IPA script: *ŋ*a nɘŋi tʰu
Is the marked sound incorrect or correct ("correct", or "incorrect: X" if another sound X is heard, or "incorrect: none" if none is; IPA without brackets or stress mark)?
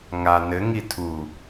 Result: correct